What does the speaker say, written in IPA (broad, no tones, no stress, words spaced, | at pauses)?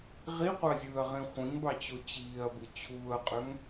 ʁiqʷɑzʲɯːɐ̯ʁĩ χʷĩŋbɑt͡ɕo t͡ɕiːɐ̯bɯ t͡ɕʰuːɐ̯qʼøŋ